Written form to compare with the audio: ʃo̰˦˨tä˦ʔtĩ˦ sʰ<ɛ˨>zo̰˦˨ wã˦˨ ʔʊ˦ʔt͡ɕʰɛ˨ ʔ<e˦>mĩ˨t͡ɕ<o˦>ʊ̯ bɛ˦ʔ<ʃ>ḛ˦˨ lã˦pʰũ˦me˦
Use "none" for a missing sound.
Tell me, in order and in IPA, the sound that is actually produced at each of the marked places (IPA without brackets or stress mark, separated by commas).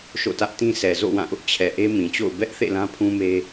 ɛ˨, e˦, o̰˦˨, θ